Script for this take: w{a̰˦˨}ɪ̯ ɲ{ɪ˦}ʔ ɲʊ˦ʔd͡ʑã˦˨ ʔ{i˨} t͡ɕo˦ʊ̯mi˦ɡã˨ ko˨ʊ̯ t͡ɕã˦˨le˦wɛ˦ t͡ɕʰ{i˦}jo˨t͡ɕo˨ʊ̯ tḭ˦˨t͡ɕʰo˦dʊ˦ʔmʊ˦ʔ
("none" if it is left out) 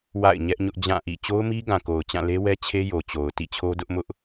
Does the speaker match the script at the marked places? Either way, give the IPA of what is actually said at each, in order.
a̰˦˨, ɛ˦, ḭ˦˨, e˦

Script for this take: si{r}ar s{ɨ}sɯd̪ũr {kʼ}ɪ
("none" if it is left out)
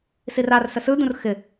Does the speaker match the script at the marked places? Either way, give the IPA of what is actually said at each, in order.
r, ə, x

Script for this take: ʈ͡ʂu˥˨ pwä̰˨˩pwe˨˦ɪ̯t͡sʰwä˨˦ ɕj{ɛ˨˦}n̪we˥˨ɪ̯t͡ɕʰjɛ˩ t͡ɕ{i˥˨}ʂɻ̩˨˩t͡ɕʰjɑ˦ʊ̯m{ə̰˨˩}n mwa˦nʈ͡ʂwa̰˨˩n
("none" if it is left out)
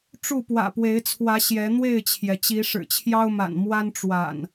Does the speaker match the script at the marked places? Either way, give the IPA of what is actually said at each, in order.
ɛ˨˦, i˨˦, a̰˨˩

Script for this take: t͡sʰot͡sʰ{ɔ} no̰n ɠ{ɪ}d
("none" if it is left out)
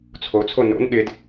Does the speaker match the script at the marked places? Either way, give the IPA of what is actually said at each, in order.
o, ɪ

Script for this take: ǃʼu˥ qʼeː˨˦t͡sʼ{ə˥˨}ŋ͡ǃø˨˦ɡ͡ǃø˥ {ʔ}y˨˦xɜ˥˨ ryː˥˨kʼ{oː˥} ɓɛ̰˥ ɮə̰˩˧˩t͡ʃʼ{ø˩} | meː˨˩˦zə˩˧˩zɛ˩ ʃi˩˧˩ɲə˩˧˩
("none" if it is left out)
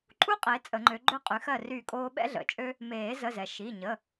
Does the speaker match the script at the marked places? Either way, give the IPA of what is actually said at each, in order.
ə˨˩˦, qʼ, oː˥, ø˥

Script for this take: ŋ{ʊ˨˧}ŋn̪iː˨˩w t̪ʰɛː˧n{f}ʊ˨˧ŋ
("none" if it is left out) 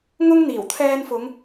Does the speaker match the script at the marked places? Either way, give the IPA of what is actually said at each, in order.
ʊ˥, f

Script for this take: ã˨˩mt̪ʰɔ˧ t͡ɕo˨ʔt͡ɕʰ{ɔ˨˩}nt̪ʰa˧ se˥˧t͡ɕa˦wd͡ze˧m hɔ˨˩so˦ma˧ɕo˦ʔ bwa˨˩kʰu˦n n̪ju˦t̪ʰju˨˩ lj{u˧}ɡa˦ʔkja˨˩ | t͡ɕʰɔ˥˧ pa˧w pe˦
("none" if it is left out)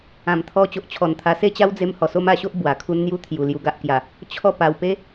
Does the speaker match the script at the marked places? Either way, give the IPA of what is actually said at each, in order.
ɔ˨˩, u˧

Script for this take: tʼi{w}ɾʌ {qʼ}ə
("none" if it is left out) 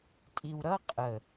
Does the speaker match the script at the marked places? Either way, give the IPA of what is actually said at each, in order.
w, qʼ

